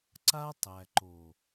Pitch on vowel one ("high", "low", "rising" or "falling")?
high